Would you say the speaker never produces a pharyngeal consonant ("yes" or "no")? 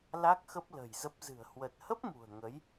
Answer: yes